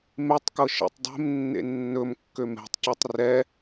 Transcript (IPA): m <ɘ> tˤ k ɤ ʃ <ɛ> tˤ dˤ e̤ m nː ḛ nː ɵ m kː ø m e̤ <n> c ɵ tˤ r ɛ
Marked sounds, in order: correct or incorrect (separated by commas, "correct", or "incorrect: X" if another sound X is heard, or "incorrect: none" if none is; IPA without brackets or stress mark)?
incorrect: e, incorrect: ɛ̰, incorrect: tˤ